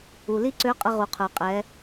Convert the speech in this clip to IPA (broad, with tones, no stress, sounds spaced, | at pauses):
u˩ l i˥ ǀ ø˧˥ qʼ ə˧ ʁ u˩ qʰ ə˞˩ qʼ ɛ˩˧